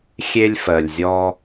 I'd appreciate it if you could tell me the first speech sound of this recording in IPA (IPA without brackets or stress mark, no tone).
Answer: xʲ